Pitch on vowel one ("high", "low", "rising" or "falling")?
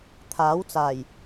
rising